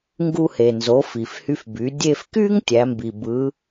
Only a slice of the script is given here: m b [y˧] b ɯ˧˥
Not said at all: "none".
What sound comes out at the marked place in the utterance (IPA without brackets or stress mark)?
i˧